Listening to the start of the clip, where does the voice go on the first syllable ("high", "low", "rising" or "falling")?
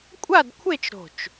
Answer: falling